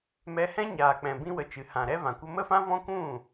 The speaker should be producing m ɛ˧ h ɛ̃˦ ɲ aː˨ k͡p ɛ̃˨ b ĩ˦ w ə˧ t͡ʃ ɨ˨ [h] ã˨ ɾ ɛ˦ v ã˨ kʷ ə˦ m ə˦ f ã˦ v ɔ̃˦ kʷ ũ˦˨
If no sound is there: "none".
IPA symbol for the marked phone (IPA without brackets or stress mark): h